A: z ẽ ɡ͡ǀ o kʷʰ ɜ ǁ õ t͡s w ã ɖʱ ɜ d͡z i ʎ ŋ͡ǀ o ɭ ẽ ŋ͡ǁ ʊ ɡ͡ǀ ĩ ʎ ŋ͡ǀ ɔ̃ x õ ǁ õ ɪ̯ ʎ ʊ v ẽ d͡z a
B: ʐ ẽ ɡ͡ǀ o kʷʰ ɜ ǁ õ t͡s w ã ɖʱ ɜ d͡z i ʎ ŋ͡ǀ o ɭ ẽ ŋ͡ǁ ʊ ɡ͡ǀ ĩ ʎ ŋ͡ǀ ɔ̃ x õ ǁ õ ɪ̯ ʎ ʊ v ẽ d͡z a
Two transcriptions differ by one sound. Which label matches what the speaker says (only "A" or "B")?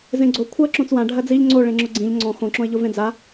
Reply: A